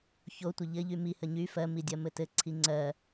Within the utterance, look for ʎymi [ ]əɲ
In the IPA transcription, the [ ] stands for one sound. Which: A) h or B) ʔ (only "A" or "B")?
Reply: A